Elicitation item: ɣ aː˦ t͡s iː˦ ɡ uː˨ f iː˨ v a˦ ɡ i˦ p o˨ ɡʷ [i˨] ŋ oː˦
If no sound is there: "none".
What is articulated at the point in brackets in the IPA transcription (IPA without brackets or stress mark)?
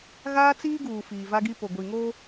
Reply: i˨